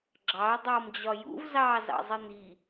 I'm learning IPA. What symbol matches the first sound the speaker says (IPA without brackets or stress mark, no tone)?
ɡ͡ǁ